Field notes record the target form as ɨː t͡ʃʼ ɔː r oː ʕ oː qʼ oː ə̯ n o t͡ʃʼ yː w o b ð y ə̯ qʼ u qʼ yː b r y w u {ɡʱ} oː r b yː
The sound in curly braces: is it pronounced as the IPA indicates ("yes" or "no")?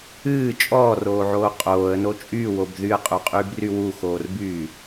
no